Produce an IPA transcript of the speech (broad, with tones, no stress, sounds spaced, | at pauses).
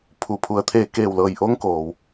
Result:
pʰ u˩˧ pʰ u˩˧ ə̯ t̪ʰ eː˧˩ k eː˧˩ w l ɤː˧˩ j ʔ o˧˥ ŋ k oː˩ w